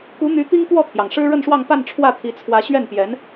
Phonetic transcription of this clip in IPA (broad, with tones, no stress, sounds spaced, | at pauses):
k u˧˥ n̪ y˧˥ t̪ i˥ ŋ k w ɔ˥˩ t̪ʰ j ɑ˩ ŋ ʂ ɻ̩˥ ɻ ə˥˧ n ʂ w ɑ˥˧ ŋ p a˥˧ n ʈ͡ʂʰ w ä˥˩ t̪ʰ i˧˥ t͡sʰ w ä˧˥ ɕ ɥ ɛ˥˩ n p j ɛ˧˥ n